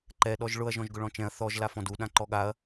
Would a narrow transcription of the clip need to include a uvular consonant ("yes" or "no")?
no